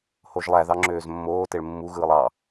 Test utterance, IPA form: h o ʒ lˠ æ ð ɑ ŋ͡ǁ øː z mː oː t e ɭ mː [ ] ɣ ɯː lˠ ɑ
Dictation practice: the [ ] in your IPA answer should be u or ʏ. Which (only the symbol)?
u